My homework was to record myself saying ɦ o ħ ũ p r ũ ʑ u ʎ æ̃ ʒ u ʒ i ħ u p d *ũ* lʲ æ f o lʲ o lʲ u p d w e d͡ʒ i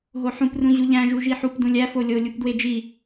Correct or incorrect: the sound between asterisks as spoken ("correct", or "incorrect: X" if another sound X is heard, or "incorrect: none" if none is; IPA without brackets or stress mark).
correct